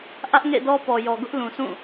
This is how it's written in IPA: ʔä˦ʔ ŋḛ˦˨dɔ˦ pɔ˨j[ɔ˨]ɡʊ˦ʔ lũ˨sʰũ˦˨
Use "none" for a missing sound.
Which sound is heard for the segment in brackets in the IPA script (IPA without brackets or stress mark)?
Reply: ɔ˨